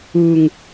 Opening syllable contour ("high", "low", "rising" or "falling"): low